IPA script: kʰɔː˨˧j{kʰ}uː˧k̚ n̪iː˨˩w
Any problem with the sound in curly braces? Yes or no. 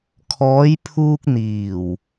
yes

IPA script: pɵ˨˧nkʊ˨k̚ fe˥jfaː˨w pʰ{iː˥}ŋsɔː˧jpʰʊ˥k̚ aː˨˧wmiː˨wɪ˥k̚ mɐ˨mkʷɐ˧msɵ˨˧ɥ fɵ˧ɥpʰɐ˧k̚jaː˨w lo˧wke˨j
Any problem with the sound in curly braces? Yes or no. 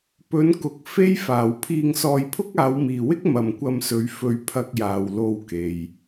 yes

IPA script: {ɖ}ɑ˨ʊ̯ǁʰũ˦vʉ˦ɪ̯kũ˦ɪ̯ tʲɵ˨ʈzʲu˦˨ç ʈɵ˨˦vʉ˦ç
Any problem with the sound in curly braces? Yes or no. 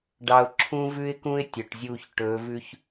no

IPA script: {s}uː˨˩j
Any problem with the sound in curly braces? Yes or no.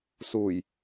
no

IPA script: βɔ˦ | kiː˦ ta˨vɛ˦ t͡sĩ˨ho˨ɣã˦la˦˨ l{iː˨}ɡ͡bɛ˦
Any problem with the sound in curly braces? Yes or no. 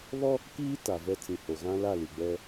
yes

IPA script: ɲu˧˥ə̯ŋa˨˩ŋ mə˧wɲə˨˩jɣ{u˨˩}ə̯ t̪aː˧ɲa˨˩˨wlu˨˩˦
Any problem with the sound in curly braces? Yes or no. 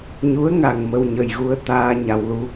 yes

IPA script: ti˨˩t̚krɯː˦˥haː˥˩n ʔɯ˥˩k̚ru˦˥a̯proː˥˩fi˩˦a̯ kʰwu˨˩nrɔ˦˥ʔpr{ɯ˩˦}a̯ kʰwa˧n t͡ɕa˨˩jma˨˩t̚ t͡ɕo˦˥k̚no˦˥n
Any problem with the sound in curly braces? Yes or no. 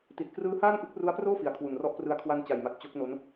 yes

